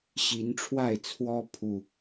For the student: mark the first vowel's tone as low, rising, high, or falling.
rising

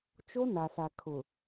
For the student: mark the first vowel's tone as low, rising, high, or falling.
high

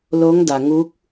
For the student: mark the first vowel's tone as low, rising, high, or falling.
rising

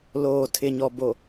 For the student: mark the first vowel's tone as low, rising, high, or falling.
low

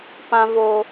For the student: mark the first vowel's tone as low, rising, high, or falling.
low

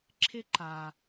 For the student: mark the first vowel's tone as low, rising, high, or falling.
high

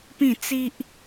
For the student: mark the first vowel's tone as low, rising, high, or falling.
falling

